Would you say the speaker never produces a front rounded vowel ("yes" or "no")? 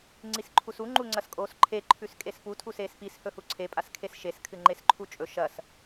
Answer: yes